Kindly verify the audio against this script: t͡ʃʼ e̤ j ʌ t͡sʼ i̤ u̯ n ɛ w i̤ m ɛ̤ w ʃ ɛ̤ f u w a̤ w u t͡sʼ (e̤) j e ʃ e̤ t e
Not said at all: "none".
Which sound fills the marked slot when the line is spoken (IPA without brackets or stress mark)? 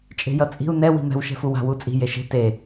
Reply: i̤